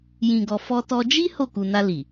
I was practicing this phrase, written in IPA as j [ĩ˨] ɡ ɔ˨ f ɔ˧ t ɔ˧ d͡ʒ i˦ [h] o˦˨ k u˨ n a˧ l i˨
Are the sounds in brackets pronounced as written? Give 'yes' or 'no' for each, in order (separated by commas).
yes, yes